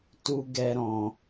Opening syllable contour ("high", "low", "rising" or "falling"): high